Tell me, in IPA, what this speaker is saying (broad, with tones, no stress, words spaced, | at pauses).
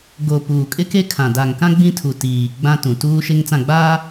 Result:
ɡo˨ puː˨kʼɪ˦ke˦kʰã˨ da˨ŋkã˦ ɡ͡bĩ˦tʰu˨tiː˨ ɡ͡bã˦ tũ˨tuː˦ʃe˦ŋ t͡sã˦˨ɡ͡baː˦